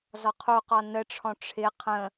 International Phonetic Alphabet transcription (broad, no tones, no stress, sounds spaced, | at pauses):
z ɒ qʰ u q ɒ n ə ʈ͡ʂʰ ɔ̃ ʈ͡ʂʰ ɪ qʰ ə̃